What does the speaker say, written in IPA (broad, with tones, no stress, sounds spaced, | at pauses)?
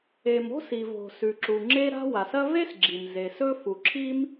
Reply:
e˩ m o̤˥ s i˩ v o̤˩ s ʉ˩ ǁ u˩ ŋ͡ǁ e˥ ɾ a̤˥ w a˩ s ɐ˥ v e˥ s ɡ͡ǁ i˩ m z e˩ s ɵ˥ f u˩ ǁʰ i˥ m